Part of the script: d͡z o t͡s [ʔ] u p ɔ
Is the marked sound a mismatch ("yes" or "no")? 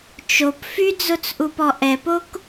no